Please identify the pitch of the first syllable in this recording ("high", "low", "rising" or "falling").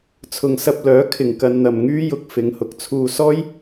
low